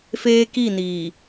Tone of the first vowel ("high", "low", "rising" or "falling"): high